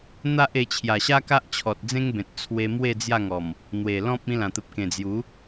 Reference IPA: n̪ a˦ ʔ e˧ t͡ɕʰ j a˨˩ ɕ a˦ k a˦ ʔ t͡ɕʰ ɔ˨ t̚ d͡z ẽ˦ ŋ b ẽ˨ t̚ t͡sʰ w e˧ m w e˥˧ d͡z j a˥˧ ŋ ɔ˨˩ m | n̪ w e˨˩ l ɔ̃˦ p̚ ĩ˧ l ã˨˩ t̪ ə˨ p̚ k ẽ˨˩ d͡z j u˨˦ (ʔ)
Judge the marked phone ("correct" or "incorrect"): incorrect